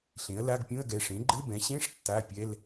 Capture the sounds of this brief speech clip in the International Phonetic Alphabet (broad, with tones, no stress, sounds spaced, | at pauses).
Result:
ɬ ẽ˩˥ ɐ̯ l a˧˥˧ ɡ pʲ ũ˧˥˧ ɐ̯ ɡ ɛ˩˧˩ ʂ ẽ˩˥ ɡ͡ǃ ɘ˧˥˧ b ɛ̃˩˥ ɕ ẽ˧˥˧ ʂ tː a˧˥˧ pʲ ɛ˧˥˧ l